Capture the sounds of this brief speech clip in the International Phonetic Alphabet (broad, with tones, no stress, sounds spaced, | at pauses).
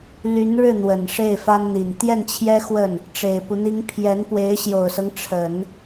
l y˧˥ n ɻ ɻ̩˥˩ n̪ w ə˨˩ n ʂ e˥˩ ɪ̯ f a˥ n n̪ i˨˩ n t̪ j ɛ˥˩ n t͡ɕʰ j ɛ˥ x w ə˥˩ n | ʈ͡ʂ e˨˩ ɪ̯ p u˦ n̪ i˥ ŋ pʰ j ɛ˧˥ n p w e˧˥ ɪ̯ ɕ j o˨˩ ʊ̯ s ɤ˦ ŋ ʈ͡ʂʰ ə˨˩˦ n